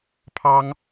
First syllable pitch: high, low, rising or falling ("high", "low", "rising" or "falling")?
high